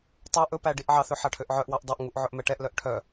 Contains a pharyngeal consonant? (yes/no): yes